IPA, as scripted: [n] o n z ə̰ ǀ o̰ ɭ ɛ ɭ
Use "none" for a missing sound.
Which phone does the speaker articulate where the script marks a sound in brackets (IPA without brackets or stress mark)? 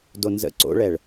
d